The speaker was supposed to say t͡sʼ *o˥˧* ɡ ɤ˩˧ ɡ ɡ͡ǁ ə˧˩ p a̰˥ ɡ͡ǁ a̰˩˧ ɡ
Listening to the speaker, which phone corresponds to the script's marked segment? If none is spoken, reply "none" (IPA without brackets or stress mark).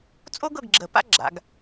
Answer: o˥